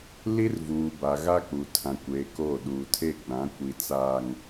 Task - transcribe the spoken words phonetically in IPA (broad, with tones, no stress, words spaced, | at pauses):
li˦rvuː˨ba˨ ɣa˦k͡pu˨ tʰã˨kʷeː˨ koː˦˨ ɗuː˨tʰe˦˨ɡ͡bã˨˦ kʷi˨t͡saː˨ŋ